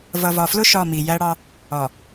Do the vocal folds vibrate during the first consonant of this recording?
yes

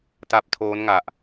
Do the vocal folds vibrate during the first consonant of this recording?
no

